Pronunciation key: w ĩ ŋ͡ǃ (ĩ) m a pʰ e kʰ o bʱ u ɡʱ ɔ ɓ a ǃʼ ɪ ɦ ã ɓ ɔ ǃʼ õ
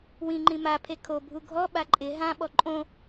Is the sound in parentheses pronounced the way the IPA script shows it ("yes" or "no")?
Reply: yes